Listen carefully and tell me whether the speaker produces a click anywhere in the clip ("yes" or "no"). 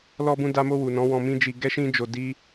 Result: no